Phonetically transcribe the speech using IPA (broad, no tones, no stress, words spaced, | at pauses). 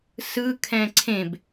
sɯkʰɛ̃ ǀʰẽb